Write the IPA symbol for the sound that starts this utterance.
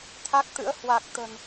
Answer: t̪ʰ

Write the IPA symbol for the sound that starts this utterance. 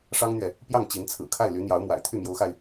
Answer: ʂ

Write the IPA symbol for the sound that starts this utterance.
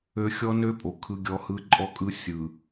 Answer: ø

